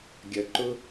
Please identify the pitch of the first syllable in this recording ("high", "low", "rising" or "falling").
low